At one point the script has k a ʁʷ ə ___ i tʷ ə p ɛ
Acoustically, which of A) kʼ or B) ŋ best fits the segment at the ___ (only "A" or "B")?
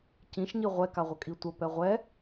A